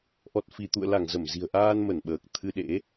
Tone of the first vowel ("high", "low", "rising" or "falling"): low